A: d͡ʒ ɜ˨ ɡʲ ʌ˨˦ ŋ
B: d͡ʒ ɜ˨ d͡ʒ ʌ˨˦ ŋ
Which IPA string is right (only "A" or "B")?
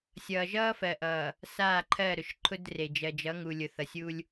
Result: B